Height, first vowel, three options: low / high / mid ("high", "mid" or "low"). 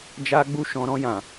low